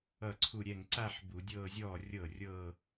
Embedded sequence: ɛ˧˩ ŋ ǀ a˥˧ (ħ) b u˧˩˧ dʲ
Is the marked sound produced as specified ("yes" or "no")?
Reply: yes